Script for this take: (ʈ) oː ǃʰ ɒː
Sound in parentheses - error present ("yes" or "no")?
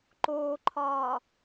yes